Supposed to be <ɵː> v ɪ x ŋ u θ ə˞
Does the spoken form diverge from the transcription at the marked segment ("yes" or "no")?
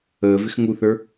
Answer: yes